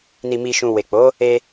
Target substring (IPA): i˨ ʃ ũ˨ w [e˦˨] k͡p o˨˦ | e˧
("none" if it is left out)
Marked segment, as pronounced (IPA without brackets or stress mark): e˨